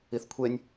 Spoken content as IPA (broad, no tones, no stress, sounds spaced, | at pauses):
i θ kʷʰ e nʲ